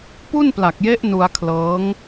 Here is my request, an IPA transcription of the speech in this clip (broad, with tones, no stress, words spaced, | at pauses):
pu˥˩npla˨˩k̚je˦˥ʔ nu˧a̯kʰlɤː˦˥ŋ